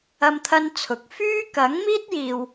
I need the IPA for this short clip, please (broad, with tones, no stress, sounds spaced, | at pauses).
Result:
ɐ˥ m t̪ʰ ɐ˥ n t͡sʰ ʊ˨˥ k̚ f yː˥ k ɐ˨˥ ŋ m iː˥ t̚ j iː˨ w